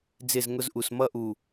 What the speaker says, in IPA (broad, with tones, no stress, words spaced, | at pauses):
d͡zɪ˦˨zŋʊ˦zʔu˨s mʌ˦ʔu˨